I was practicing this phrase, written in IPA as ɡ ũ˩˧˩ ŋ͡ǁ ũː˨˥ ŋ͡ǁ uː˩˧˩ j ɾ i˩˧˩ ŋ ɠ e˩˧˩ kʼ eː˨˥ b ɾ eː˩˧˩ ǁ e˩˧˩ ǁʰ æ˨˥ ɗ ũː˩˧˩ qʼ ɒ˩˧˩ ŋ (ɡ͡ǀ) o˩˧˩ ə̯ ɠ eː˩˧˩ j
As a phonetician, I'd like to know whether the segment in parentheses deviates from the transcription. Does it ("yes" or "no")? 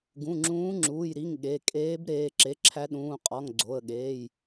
no